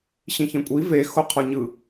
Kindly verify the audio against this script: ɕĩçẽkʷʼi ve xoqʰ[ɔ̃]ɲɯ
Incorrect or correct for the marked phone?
incorrect: ɔ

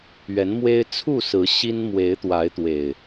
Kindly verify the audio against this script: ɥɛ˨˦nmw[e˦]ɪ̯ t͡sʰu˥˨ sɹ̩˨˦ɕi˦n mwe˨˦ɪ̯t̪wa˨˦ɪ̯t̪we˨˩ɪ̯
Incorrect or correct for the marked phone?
correct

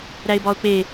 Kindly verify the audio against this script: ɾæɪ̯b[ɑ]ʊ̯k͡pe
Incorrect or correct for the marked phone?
incorrect: ɒ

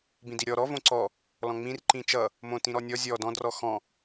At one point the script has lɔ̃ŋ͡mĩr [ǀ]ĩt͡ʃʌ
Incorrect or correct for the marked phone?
incorrect: ǃ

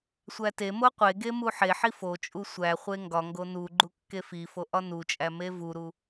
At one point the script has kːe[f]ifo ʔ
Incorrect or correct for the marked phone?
correct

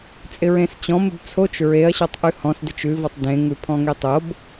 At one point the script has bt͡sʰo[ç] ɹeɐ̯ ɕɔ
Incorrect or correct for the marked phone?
incorrect: t͡ʃ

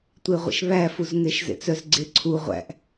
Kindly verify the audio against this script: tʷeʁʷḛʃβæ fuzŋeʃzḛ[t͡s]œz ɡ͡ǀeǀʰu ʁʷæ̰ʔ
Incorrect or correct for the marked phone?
correct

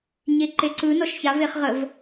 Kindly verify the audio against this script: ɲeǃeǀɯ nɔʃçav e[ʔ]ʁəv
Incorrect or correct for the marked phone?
incorrect: χ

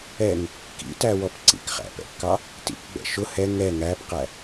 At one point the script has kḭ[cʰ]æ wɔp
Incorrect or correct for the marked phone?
incorrect: t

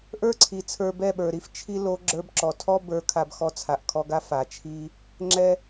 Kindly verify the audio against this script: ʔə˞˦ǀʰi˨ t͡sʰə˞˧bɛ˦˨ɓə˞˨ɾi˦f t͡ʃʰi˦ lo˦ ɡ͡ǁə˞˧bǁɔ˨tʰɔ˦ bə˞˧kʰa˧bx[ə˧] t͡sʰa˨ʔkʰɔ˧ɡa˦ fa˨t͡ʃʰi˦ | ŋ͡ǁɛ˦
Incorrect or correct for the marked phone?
incorrect: ɔ˧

